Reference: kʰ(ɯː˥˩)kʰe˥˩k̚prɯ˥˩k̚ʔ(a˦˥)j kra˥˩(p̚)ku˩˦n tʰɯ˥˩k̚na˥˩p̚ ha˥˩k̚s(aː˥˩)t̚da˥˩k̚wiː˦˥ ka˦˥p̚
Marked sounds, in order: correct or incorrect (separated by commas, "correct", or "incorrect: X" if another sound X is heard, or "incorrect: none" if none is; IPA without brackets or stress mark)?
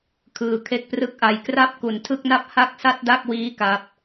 incorrect: ɯː˧, correct, correct, incorrect: a˥˩